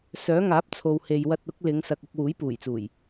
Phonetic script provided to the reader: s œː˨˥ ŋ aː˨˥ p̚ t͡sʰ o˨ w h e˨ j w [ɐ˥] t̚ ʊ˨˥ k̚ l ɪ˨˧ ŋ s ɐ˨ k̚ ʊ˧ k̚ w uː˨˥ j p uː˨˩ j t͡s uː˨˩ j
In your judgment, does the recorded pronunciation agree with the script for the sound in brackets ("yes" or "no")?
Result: no